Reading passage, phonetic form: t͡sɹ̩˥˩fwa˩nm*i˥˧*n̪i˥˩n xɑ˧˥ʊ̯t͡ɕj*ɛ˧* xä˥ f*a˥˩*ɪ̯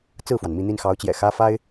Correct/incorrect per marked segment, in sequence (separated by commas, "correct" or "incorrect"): correct, incorrect, incorrect